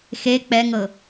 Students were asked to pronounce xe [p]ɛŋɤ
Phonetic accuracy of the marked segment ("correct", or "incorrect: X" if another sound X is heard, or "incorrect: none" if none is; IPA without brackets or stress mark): incorrect: k͡p